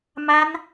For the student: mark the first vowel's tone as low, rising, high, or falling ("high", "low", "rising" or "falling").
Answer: high